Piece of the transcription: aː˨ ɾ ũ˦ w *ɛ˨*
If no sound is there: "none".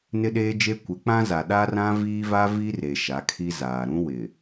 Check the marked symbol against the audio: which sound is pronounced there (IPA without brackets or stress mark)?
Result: ɪ˨